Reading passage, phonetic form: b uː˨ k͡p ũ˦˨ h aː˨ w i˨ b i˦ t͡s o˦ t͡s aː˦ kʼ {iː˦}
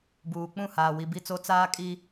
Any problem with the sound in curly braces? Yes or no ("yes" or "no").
yes